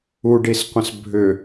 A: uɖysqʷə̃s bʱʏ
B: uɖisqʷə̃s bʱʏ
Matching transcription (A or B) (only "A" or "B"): B